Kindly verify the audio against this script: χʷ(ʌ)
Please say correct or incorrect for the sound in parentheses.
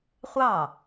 incorrect